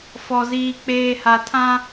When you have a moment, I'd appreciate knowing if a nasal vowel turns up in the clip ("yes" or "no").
yes